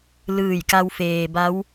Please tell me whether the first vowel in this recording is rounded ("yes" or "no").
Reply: no